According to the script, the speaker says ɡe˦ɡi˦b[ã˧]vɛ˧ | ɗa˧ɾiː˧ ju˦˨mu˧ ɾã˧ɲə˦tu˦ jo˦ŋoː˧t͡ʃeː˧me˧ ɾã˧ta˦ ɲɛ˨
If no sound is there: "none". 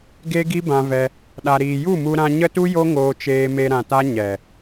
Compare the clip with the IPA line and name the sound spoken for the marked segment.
ã˧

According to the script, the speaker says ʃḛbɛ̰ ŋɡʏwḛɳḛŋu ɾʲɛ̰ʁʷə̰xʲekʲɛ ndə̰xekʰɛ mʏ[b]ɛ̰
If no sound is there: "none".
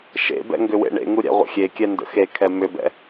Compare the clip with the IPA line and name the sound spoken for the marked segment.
b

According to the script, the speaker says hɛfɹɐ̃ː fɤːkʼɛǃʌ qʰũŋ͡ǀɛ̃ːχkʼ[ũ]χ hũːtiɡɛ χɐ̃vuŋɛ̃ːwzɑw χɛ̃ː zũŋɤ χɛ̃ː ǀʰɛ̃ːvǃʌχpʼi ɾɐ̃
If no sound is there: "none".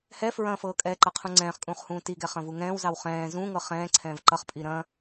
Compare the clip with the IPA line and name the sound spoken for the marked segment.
ũː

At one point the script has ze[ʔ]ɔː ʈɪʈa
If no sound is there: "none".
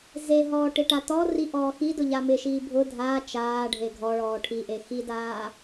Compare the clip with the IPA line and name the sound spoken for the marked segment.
ɦ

